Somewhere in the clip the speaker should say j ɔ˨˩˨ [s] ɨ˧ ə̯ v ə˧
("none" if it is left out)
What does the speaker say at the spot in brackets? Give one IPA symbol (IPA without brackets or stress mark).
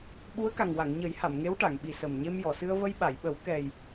s